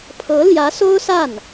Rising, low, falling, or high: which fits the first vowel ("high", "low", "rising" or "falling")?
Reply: rising